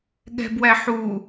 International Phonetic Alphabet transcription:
ɠ ɛ̤ b w æ ħ u

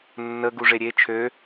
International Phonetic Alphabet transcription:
nː ə ɡ u ʐ e ɾʲ e t͡ʃʰ ø

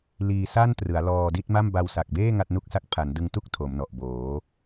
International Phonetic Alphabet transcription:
l iː˧ s a˥˩ n t r ɯ˩˦ a̯ l ɔː˧ d i˥˩ t̚ m a˥˩ m b a˧ w s a˨˩ k̚ b eː˥˩ ŋ a˥˩ t̚ n u˥˩ k̚ s a˥˩ k̚ pʰ a˩˦ n d ɯ˧ ŋ t u˥˩ k̚ tʰ o˩˦ m n ɔ˨˩ ʔ b oː˩˦

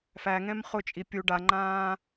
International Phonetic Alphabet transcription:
f æ ŋ ɛ̃ m χ ʊ t͡ʃʼ i pʲ u ɖ a ŋ͡ǃ ãː

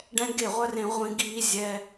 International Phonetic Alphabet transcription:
ɖ ɛ̃˦ ɡ e˦˨ ʁʷ œ˦ r ẽ˧ ʁʷ ĩ˧ ɡ iː˧ zʲ ɛ˧

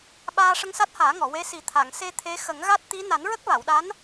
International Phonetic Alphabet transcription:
ɓ aː˧ ʂ ə˧ ŋ s a˦˥ t̚ h aː˨˩˦ ŋ ɔ˨˩˨ w e˧˥ s i˨˩˦ t̪ʰ a˨˩˨ ŋ s e˧ t̪ʰ e˧˥ x ə˨˩˦ ŋ ɣ a˦˥ t̚ t̪ i˧˥ n a˨˩˦ n ɹ ə˦˥ k̚ v a˨˩˨ w ɗ a˧˥ n

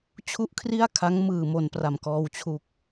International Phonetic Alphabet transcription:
t͡ɕʰ u˥˩ ʔ kʰ r i˥˩ a̯ kʰ a˦˥ ŋ m ɯː˧ m o˧ n p r a˨˩ m k ɔː˧ w t͡ɕʰ u˨˩ k̚

